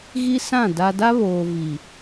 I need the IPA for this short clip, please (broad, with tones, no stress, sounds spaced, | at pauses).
ɣ i˦ s ã˦˨ d a˦ d a˦ β oː˨ v i˨